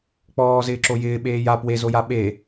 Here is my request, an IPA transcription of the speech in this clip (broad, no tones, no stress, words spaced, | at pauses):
k͡pɔːzɪːǁo jɪːɓeːj a pwezoja ɓe